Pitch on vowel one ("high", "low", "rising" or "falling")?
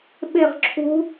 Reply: falling